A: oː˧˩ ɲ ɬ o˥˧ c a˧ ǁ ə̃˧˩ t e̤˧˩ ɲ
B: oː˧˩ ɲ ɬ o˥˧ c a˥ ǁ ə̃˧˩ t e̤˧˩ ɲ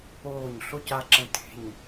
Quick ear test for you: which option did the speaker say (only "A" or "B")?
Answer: A